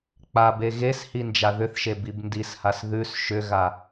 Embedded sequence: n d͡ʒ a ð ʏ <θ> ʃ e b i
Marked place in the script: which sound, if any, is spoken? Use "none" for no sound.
θ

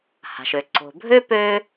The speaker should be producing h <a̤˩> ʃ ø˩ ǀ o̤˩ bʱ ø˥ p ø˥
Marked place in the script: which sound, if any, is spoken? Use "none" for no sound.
a̤˩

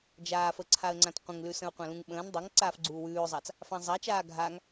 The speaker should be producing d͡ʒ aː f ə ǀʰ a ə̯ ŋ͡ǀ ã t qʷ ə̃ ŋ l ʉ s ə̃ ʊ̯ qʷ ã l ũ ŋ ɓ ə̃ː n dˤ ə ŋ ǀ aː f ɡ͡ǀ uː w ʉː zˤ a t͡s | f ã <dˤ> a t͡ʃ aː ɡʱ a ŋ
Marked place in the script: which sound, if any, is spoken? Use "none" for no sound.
zˤ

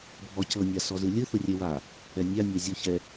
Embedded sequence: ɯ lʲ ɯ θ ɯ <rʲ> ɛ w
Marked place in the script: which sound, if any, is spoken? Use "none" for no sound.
rʲ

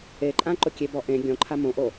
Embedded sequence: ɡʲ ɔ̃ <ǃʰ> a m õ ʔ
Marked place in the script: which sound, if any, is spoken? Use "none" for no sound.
ǃʰ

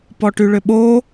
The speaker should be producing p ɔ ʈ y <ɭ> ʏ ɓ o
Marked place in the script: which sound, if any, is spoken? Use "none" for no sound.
ɭ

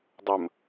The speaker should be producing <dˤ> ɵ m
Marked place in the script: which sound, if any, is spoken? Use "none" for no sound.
dˤ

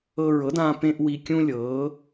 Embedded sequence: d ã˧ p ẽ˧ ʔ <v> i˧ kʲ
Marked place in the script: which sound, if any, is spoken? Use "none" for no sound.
w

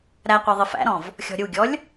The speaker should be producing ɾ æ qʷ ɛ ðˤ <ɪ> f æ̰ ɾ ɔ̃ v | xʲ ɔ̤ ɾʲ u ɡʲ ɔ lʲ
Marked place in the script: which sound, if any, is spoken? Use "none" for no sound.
ɪ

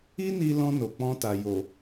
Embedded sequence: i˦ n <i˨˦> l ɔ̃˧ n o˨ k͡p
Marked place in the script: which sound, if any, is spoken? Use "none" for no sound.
i˧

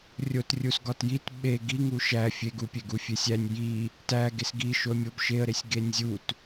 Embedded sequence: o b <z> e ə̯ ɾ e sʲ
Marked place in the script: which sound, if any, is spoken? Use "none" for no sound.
ʃ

